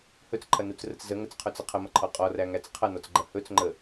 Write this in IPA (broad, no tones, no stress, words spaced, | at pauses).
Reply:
hɵt͡sǃʰɐnut͡srət͡s zəŋət͡sqʰɵt͡sə qʰəmɐǃʰɔ qʼɔræŋæt͡s qʰɐnɔt͡sɡ͡ǃɐ hɵt͡sŋ͡ǃə